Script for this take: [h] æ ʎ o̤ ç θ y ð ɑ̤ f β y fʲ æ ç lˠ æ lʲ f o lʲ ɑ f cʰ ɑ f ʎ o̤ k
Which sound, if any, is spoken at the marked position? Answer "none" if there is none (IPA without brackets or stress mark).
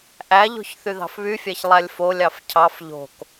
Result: ʔ